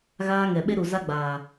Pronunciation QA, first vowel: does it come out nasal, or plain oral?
oral